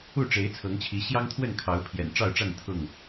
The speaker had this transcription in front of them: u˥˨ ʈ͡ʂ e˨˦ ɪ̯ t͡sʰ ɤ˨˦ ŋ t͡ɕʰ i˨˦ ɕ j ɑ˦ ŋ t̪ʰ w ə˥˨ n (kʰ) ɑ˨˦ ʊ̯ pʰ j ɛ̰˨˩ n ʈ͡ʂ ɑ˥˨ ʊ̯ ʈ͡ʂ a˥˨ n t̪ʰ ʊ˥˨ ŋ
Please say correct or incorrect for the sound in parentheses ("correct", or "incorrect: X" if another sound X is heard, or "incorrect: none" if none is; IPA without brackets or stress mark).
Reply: correct